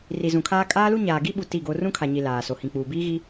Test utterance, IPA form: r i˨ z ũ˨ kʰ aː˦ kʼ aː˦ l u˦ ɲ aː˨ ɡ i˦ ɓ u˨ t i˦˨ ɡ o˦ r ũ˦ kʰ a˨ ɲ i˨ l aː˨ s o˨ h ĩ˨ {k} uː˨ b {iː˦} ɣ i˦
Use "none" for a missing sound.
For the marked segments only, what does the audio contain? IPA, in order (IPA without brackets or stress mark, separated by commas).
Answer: k͡p, iː˦